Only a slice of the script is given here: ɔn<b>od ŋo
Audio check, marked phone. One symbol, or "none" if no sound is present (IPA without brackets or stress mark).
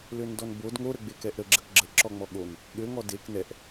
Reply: b